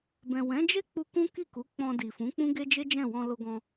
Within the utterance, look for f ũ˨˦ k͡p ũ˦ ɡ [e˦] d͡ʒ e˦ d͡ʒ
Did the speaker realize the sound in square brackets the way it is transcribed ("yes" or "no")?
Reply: yes